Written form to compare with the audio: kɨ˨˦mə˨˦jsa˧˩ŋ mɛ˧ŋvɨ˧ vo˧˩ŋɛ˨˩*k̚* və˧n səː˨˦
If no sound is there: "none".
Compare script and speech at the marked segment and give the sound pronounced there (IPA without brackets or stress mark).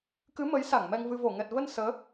t̚